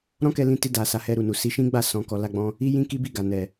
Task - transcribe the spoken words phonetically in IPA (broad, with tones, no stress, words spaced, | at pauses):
ɾɔ̃˦kɛ˧ lĩ˧ti˧da˨ sa˨˦hɛ˧ ɾu˨nu˨ si˧ʃĩ˦ ɡ͡ba˦˨ sɔ̃˧kɔ˧ la˧ɡ͡bɔ̃˧ | i˦jĩ˦ki˦bi˦˨ ɡa˨nɛ˨